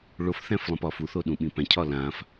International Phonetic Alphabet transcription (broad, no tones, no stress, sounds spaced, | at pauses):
ɭ o f θ æ̃ f lˠ ə̃ p ɒ f u θ o ɗ ũ ɓ ĩ p æ̃ cʰ ɒ l ã f